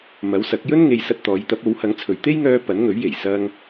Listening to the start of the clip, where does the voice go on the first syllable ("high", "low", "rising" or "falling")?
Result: rising